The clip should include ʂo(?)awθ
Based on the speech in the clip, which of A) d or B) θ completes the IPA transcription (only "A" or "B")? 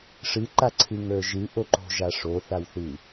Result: B